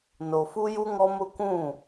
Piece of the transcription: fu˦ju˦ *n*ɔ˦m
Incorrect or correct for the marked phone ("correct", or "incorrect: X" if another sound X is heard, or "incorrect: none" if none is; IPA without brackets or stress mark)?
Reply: incorrect: ŋ